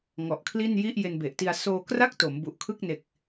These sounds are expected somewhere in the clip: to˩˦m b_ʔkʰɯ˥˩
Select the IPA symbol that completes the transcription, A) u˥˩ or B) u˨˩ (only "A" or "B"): B